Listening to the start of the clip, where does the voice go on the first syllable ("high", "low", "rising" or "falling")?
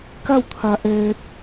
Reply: falling